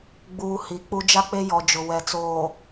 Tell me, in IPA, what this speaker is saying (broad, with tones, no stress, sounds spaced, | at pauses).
ɡ͡b uː˨ h i˨˦ k͡p u˦ d͡ʒ a˦ k͡p e˦ j ɔ˨ d͡ʒ ʊ˨ w ɛ˨ t͡s oː˨